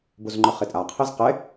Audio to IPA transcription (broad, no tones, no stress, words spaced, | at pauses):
buzŋ͡ǃɵχitʼa qʰizqe